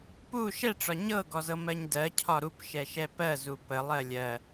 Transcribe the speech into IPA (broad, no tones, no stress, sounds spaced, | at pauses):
p u ʃ ɛ ʈ͡ʂ ɒ ɲ ɤ ɡ ɔ z ɤ m ɜ ɲ d ɜ cʰ ɒ ɾ u p ʃ ɛ ʃ ɛ p ɜ z u p ə lˠ ɜ lʲ ɜ